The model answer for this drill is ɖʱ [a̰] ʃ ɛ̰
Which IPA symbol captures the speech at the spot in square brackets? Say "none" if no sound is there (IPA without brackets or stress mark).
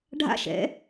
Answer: a̰